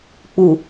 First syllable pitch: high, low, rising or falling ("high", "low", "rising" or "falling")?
low